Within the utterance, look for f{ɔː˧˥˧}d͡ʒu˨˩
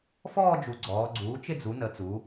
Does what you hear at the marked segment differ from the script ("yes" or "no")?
yes